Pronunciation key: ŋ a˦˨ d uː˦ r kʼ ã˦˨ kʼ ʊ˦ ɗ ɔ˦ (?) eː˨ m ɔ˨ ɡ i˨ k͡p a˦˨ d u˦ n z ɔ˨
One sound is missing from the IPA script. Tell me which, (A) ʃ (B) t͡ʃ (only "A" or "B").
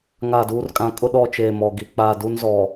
B